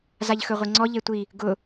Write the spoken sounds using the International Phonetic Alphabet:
z a ʎ x ɵ ʁʷ i ŋ͡ǀ ɔ ʎ e tʷ i | ɡ ʊ

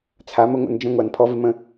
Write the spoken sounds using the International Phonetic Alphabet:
t͡sʰ a˨˦ m ə˧ ŋʷ ə̰˧ n d͡ʒ ə̃˧ ŋʷ a˨ n pʰ ɔ˧ v ɪ˧ m ə̃˧

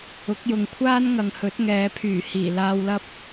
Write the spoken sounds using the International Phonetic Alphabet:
ʊ˨˥ k̚ j ʊ˨ ŋ kʷʰ aː˥ n ŋ ɐ˨ ŋ h ɵ˨˥ t̚ ŋ ɛː˨˧ pʰ yː˨˩ h iː˨˩ l aː˨ w l ɐ˧ p̚

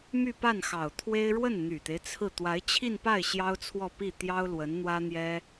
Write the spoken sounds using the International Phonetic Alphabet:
m y˥˧ p a˥˩ n x ɑ˨˩ ʊ̯ t̪ʰ w e˥ ɪ̯ ɻ w ə˥˩ n n̪ y˨˩ t̪ e˦ ɪ̯ t͡sʰ ɹ̩˥˩ t̪ w a˧˥ ɪ̯ t͡ɕʰ i˥˧ n p a˥˩ ɪ̯ ɕ j ɑ˥ ʊ̯ t͡sʰ w ɔ˥˧ p i˥˩ t̪ j ɑ˥ ʊ̯ l w ə˧˥ n n̪ w ä˥ n̪ j ɛ˥

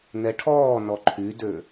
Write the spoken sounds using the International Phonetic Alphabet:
n ɛ ʈʰ ɔː n ɔ ǃʰ y d ø

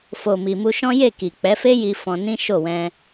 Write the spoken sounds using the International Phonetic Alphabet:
f o˨ m i˨ m u˧ ʃ ɔ̃˦ j e˦˨ k i˨ k͡p ɛ˨˦ f e˦ j i˧ f ɔ̃˧ n ĩ˦ ʃ o˦˨ w ɛ̃˧

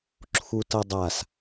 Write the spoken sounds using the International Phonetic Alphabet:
ǁʰ u t ʌ dˤ a s

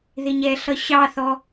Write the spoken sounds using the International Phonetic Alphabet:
ð ɪ ɲ ɛ ɬ ʌ ɕ ɑ θ ɔ

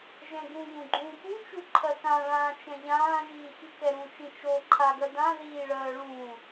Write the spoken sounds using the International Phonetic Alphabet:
ʒ ɛ̃ ɡ ũ ʎ ũ ɡ͡ǃ ũː p u t͡ʃ u ǃʰ ɜ k ã ɭ ãː t͡ʃ ɛ̃ ʎ ãː ʒ iː x i k ɛ ɾ ũ t͡ʃ ĩ t͡ʃ o ǃʰ a ɡ ɜ d ã ð iː ɭ ɜː ɭ ũː

